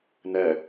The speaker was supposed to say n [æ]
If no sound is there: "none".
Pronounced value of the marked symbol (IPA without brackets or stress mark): ɛ